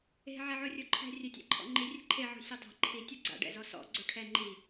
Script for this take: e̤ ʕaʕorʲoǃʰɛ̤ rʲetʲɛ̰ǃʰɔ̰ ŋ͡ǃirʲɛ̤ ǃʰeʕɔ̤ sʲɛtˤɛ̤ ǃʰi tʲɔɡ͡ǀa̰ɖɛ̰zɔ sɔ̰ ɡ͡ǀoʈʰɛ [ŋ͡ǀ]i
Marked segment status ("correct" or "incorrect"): incorrect